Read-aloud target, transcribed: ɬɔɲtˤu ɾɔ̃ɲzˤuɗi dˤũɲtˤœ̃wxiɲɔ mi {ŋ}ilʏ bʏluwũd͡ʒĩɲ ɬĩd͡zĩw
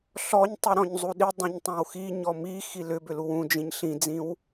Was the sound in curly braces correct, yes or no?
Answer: no